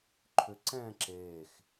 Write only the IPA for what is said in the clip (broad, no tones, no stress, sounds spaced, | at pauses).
ǃʰ ʏ ǀ ɛ̃ː ǁ eː x